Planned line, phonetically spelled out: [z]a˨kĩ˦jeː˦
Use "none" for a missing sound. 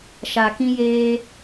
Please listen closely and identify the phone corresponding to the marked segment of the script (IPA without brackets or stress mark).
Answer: ʃ